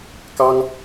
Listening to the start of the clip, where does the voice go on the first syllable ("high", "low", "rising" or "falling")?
high